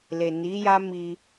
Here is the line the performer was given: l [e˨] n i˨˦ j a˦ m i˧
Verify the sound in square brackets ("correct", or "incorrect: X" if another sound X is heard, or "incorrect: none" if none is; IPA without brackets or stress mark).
correct